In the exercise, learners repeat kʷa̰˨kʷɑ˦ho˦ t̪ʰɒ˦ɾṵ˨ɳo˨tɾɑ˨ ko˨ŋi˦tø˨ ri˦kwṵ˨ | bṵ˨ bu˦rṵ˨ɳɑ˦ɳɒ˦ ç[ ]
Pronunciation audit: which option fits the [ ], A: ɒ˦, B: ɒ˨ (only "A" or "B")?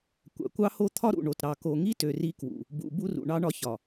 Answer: B